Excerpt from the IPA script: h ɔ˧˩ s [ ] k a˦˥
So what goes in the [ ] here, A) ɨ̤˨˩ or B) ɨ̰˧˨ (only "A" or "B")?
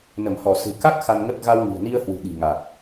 A